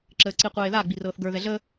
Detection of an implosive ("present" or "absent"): absent